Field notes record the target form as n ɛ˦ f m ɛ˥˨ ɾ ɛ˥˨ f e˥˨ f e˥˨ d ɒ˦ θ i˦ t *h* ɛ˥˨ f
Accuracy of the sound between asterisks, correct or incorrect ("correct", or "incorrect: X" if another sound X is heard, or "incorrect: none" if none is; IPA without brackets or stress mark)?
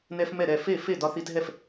incorrect: ɦ